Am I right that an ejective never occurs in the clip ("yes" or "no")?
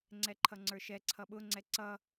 yes